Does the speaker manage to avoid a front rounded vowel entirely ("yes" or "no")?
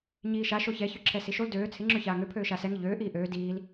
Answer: no